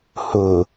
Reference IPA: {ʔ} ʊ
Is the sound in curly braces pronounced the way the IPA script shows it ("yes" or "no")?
no